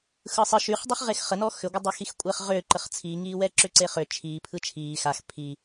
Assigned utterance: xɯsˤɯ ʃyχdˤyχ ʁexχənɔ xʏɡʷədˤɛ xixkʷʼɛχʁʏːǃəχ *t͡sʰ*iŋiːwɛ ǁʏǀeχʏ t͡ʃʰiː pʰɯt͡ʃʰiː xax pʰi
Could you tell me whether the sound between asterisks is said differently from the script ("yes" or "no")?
no